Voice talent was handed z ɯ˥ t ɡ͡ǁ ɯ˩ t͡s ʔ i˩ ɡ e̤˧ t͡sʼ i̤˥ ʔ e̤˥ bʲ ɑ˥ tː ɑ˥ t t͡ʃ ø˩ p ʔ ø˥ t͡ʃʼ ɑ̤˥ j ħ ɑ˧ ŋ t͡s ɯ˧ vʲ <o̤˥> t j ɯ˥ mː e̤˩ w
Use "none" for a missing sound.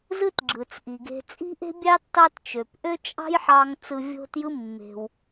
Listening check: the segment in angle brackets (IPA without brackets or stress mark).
o̤˥